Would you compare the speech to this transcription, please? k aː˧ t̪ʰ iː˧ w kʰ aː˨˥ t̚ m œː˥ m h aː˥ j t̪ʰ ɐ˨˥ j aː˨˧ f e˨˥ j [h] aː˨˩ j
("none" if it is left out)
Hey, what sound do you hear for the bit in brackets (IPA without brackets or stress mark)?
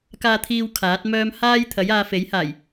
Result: h